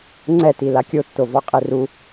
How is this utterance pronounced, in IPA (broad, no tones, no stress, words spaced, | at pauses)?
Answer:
ŋ͡ǀɛti lakʲotːovɔ qʼeru